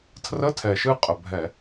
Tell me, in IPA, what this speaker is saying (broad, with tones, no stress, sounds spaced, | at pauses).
tʰ r ə˧˥˧ tʰ ɛ˨˩ ʃ ɨ˦˨ qʼ ə˨˩ bʱ ɛ˧˩˧